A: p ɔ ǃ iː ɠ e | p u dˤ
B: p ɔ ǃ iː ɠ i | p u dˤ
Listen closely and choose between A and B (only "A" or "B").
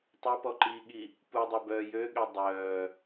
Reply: B